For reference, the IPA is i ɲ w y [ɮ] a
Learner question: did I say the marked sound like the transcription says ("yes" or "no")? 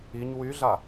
yes